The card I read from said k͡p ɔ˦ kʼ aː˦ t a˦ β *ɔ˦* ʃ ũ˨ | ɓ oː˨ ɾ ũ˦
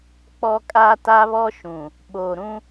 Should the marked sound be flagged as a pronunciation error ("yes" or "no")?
no